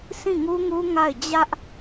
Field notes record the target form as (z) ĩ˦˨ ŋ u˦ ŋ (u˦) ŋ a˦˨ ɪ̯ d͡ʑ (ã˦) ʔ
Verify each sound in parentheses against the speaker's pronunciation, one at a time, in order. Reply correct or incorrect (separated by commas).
incorrect, correct, incorrect